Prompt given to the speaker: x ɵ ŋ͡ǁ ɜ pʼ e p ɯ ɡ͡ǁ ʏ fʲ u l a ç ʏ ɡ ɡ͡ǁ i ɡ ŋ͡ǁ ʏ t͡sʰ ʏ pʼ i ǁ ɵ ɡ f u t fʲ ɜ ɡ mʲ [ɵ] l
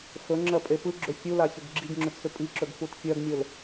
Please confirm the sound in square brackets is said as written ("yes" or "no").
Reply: yes